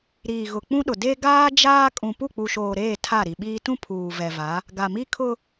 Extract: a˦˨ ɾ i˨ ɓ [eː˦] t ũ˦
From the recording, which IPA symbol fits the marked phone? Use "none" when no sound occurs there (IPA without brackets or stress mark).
iː˦